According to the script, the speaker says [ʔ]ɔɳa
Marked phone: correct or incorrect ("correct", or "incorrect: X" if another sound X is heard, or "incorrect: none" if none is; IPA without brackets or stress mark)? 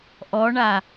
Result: correct